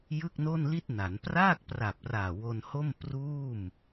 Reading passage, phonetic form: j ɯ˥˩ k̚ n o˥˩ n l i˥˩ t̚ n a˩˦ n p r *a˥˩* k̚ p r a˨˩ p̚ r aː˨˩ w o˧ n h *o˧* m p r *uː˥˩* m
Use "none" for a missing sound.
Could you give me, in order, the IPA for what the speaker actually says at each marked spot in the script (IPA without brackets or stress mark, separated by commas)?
aː˥˩, o˥˩, uː˥˩